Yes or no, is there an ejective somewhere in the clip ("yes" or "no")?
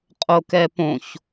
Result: yes